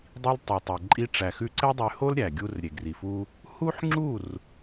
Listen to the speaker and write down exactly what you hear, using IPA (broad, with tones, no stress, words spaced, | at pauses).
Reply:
dˤi˧l tˤe˨tˤe˨ ǃʼi˧ ʈ͡ʂæ˨xʉ˧ǀɛ˦ dˤy˧ho˦lɾʲæ˨ ɡʲu˧rɾʲe˨ɡri˨fu˧ | hu˦ħŋ͡ǁu˦˨r